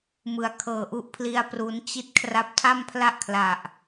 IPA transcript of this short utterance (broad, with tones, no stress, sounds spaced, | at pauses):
m ɯ˨˩ a̯ kʰ ɤː˨˩ ʔ u˦˥ ʔ pʰ l i˧ a̯ p r u˦˥ n t͡ɕ i˥˩ t̚ kʰ r a˦˥ p̚ tʰ a˥˩ m pʰ l a˥˩ ʔ kʰ l a˨˩ ʔ